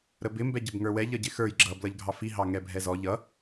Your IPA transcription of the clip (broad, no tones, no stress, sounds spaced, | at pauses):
ɾ ə b ɪ m b ɛ ɟ ə b ŋ ə˞ w ɛ ʎ ʌ ɟ ɪ x ə˞ j ɡ͡ǁ ʌ b l ʌ ʎ ɡʱ ɑ f i ɦ ɑ ŋ ɛ bʱ ɛ z ɔ ʎ ʌ